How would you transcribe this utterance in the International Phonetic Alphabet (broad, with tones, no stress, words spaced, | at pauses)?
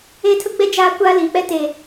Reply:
eː˦ tʰʊ˦ɡ͡bɛ˦ d͡ʒaː˦ kʷaː˦liː˨k͡pɛ˦ teː˨